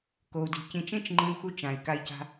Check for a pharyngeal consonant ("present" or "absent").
absent